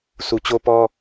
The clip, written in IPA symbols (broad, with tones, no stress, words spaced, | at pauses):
su˨t͡ɕo˦pɔ˦